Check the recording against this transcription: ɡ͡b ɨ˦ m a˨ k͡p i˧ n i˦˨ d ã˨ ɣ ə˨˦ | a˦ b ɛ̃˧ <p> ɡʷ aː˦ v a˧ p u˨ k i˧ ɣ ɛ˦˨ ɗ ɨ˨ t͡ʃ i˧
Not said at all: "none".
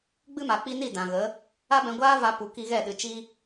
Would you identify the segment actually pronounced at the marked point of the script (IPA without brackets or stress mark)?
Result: none